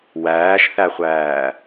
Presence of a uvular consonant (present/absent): present